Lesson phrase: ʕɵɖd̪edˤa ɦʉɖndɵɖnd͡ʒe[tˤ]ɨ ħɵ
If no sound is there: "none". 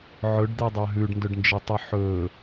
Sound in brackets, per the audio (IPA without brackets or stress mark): tˤ